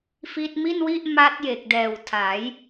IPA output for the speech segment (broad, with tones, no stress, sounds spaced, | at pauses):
f i˦˥ t̚ m i˥˩ n w i˥˩ ʔ m a˦˥ t̚ j e˨˩ k̚ d ɛː˨˩ w tʰ a˩˦ j